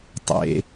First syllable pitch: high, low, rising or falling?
low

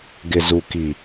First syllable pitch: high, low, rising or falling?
low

